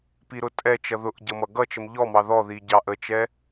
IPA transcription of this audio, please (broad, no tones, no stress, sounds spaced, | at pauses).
p i ɾ ʊ tʼ ɛ t͡ʃ ʌ ð ʊ ʔ ɟ ʌ m ʌ ɡ ʌ t͡ʃ ə m ʎ ɔ m ɑ ð ɔ ð i ɟ ɑ ʔ ə t͡ʃ ɛ